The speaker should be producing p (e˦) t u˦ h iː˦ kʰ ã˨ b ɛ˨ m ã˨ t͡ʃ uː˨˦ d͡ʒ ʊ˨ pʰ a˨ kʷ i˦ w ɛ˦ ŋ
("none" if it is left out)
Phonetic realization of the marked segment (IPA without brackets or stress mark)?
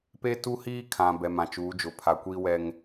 e˦